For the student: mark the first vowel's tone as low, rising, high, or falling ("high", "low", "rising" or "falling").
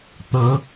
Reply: rising